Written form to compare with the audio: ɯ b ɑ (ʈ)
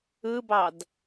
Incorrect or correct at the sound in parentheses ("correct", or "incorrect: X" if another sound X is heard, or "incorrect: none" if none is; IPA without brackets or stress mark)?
incorrect: d